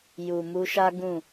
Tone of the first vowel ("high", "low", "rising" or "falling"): low